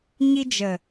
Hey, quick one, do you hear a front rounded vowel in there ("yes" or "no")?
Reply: no